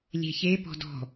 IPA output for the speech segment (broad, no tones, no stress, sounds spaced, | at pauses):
lʲ e̤ ç e p ɔ̤ d ɔ̤